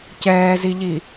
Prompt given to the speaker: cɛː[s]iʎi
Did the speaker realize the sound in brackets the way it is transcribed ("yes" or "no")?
no